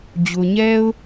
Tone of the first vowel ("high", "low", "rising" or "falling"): high